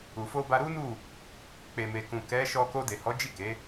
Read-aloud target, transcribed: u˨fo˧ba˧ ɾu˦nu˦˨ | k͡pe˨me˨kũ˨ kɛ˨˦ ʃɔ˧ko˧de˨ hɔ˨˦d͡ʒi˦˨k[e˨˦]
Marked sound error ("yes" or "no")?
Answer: no